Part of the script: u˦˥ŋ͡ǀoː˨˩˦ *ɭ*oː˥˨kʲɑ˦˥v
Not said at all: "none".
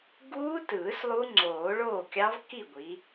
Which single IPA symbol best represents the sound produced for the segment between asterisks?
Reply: ɭ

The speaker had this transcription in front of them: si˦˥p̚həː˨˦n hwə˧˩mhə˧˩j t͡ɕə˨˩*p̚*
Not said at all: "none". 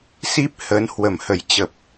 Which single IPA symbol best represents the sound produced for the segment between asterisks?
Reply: p̚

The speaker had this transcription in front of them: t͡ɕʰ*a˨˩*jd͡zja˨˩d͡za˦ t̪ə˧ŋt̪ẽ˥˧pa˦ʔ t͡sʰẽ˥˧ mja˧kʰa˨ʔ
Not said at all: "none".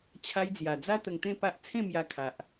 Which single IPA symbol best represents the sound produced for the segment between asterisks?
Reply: a˧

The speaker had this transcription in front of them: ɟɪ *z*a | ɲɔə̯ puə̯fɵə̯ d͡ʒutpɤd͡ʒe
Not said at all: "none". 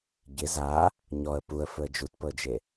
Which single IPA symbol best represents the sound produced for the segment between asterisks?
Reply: z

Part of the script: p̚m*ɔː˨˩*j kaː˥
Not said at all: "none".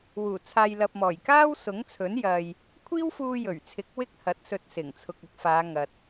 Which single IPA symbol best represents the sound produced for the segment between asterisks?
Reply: ɔː˨˩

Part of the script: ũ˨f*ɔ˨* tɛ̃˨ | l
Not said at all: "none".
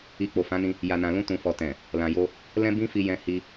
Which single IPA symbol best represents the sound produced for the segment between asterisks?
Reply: ɔ˨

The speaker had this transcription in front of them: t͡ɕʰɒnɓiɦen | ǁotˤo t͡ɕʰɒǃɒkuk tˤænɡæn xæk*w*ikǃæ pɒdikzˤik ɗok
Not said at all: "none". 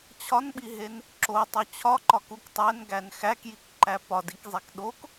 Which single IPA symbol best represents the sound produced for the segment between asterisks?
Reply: j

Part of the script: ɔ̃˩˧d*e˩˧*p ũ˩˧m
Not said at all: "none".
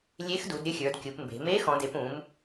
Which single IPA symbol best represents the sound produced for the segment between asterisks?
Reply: e˩˧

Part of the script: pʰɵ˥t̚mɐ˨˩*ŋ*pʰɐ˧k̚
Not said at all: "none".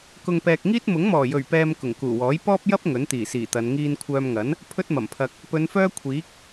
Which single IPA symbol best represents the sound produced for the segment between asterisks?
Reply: m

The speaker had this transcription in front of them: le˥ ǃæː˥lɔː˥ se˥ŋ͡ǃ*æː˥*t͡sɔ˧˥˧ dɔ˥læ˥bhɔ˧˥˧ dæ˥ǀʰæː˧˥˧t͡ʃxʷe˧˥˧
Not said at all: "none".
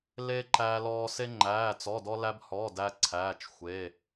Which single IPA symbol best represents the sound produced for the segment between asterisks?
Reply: æː˧˥˧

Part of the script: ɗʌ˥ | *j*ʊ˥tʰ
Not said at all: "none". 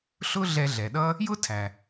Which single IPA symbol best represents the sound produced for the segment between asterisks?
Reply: j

